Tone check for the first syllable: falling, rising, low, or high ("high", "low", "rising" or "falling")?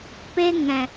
high